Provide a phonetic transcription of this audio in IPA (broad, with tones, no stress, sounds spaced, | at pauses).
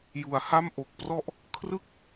j u˩˦ a̯ h a˥˩ m ʔ o˨˩ k̚ p r ɔ˥˩ ʔ | kʰ r ɯ˥˩ k̚